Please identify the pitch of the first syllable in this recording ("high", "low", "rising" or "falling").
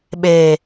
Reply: low